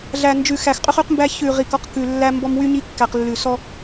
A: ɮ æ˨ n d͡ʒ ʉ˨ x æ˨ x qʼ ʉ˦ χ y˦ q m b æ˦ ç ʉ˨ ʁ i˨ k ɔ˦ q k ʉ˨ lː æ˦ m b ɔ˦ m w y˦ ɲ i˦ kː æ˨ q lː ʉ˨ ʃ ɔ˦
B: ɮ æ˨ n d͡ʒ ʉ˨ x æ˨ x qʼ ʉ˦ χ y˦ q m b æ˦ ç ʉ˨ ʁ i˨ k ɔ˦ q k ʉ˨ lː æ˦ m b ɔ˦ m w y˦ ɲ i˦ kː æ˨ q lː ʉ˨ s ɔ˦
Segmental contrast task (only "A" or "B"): B